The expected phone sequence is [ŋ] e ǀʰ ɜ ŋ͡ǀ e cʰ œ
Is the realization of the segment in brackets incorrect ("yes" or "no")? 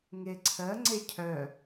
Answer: no